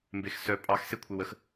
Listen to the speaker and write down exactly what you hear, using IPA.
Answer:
m b e x s œ pʼ ɑ x s e kʷʰ e w ə x

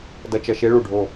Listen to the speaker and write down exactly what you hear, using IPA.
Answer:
d ʌ˧ t͡ʃ ʌ˧ ʃ e˦ ɭ u˨ ɖʱ o˦˨

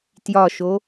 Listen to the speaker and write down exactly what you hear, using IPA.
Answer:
t j ɒ ʃ o

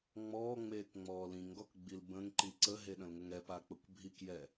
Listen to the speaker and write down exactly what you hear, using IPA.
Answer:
ŋ͡m ɔː ŋ͡m eː k ŋ͡m ɔː l ĩ ŋ ɡ ɔ k ɡ͡b i l b ə̃ ŋ ǃ i ǀ ə ɦ e ɗ ə̃ l ŋ ə ŋ ɛ p a k͡p ə kʷ bʱ i k j ɛ

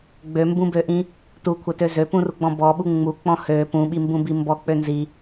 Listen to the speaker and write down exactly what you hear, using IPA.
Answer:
ɡ͡b ø m b ũ b ø ʔ ĩ | t u kʷʰ ɛ t ø z ø p ũ r u ɡ͡b ɔ̃ b ɔ ɓ u ŋ͡m u k͡p ɔ̃ h ø p ũ ɓ i m b ũ b i m b ɔ k͡p ø n z i

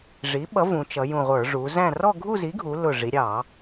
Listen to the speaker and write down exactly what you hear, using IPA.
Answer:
ʐ i˨˥ ɓ ʌ˨˥ v ũ˩˧ t͡ʃ ʌ˩˧ j ũ˧˩ ʁʷ ə˞˧˩˧ ʐ u˩˧ z æ̃˥˧ r ɔ˥˧ ɡʱ u˥˧ z i˨˥ ɡʱ u˩˧ l ʊ˧˩ ʐ i˩˧ ɾʲ ɑ˧˩˧

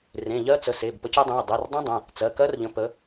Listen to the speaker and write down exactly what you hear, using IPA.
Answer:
r ẽ˩˧˩ ʎ ɜ˦˥ t͡s ə˩˧˩ s e˩˧˩ b p ə˨˦ c i˨˦ dˤ ẽ˩˧˩ ə̯ dˤ i˩˧˩ r dˤ ĩ˦˥ dˤ ə̃˩˧˩ | t͡s ɜ˩˧˩ k ɜ˦˥ r ʎ ə̃˨˦ p ə˨˦

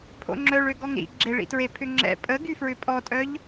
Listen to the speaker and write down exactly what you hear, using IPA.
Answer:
pʰ o̰ ŋ͡ǁ œ ɭ ø ɡ ɔ ŋ ɾ ḭ ɡ͡ǁ e ɭ ḭ t ɹ e pʰ ʏ ŋ͡ǁ ɛ̰ pʼ ə ɡ y f ɹ ʏ pʼ ɔ tʼ œ ʎ

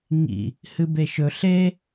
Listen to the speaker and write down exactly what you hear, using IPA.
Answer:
ŋ ḭ | h ɨ b e ʃ ɵ ɬ e

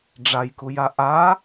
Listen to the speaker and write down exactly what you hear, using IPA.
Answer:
ɖ͡ʐ a j k u j a ʔ a

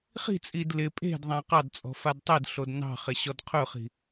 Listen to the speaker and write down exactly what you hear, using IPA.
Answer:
χ i̤ t͡sʼ i d l ɪ pʼ e̤ d ðˤ ã q ɑ d t͡sʼ ɔ̤ f a d tˤ ɪ d ɬ o d n ɑ̤ χ ɪ ɕ ɔ d qʰ ɵ χ i̤

